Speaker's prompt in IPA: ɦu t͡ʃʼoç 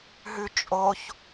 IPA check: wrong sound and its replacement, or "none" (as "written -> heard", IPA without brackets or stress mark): u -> ʉ